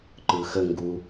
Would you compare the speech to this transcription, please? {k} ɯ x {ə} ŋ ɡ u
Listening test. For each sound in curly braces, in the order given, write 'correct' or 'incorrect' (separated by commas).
incorrect, correct